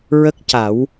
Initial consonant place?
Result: alveolar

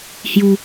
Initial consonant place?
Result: glottal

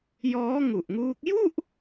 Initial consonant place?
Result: palatal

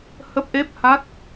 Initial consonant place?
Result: glottal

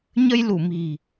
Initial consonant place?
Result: palatal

